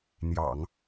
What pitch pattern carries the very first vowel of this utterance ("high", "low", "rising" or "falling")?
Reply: low